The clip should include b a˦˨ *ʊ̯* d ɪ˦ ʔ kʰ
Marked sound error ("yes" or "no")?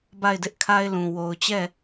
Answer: yes